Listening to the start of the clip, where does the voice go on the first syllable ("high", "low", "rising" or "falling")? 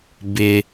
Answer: high